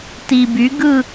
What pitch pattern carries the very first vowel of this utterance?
low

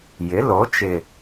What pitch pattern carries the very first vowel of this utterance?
rising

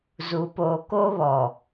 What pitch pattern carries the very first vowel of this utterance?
low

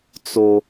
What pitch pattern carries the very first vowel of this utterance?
high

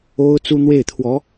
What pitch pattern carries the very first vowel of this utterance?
high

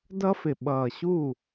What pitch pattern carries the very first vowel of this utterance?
high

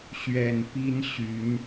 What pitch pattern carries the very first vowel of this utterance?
low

